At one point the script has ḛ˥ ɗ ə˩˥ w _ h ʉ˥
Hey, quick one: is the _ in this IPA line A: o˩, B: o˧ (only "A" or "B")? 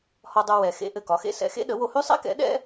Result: B